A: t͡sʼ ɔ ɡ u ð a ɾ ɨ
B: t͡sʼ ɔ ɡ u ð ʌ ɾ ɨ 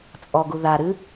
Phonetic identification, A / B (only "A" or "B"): A